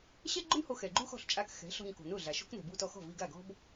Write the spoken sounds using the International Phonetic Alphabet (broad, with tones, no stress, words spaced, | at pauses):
ɕɛ˥ɡ͡ǃʊ˥nho˧ xɛ˩ɡ͡ǃu˥xɔ̤˥˩ɬt͡ʃʼa˧k xɛ̤˩˥ɬɔ̤˧ɲ ko̤˩nʊ˥˩ɮa˩ ʃo̤˥knɛ̤˩bu˧ tɔ˧xɔ̤˥˩vi˧ ɡa˥˩ɡɔ̤˥b